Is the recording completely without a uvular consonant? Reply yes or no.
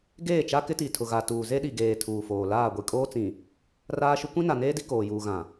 yes